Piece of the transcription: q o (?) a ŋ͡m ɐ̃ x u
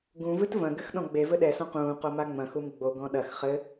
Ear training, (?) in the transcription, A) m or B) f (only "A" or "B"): A